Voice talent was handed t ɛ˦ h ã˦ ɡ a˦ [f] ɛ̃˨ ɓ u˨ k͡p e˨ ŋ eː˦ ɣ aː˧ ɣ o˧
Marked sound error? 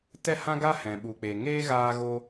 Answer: yes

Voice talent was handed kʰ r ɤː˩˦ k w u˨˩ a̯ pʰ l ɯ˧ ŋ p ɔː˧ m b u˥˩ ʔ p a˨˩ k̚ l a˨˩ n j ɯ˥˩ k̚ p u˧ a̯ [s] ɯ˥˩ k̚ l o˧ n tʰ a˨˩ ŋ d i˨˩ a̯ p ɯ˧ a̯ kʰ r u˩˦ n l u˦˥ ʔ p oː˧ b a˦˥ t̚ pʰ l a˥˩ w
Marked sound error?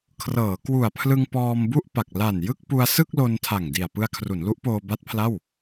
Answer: no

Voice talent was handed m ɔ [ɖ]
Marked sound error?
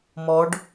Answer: no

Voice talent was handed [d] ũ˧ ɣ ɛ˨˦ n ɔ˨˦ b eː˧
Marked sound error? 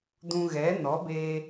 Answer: no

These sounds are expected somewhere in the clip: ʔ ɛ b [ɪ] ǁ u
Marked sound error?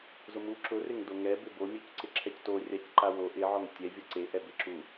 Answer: no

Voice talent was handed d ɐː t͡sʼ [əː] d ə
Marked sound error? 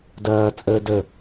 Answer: no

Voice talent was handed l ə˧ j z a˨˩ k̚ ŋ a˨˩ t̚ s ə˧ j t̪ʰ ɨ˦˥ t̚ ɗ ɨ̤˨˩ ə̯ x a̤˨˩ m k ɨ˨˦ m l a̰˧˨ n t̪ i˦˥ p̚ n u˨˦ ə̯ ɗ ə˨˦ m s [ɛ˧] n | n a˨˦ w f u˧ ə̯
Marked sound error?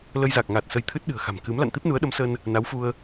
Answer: yes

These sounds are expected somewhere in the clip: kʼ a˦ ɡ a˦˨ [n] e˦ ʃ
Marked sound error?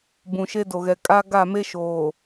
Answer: yes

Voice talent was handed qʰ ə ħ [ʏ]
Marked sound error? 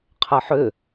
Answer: no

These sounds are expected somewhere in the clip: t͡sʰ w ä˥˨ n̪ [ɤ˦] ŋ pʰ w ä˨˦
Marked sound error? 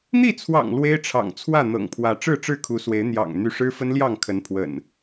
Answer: yes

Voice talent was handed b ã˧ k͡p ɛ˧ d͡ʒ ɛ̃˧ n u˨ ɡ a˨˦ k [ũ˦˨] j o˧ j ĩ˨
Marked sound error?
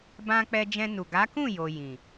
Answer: no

